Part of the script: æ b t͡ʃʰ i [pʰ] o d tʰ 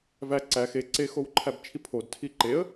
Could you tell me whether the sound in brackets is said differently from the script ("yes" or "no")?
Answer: no